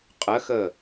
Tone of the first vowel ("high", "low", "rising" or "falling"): rising